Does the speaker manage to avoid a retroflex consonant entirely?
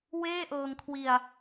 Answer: yes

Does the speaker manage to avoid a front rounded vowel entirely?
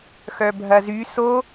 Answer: no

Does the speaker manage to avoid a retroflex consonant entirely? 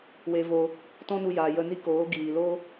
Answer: yes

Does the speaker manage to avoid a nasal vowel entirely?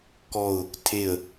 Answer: yes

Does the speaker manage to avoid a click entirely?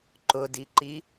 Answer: no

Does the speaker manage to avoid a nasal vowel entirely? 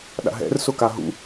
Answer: yes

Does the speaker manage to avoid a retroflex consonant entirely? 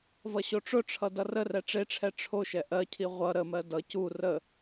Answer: no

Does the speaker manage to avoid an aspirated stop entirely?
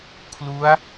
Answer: no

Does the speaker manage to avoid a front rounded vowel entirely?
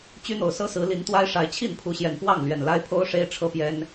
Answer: no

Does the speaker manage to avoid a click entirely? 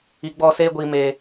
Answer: yes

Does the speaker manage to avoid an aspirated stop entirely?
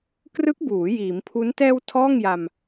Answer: no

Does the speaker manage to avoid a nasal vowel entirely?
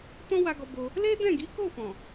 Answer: no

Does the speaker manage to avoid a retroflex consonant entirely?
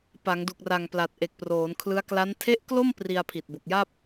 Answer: yes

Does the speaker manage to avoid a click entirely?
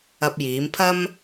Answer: yes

